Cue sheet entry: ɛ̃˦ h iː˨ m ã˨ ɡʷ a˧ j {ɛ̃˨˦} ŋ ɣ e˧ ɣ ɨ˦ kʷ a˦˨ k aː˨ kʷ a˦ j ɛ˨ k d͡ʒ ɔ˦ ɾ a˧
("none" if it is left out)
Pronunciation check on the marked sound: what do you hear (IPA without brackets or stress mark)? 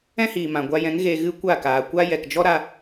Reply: ɛ̃˨˦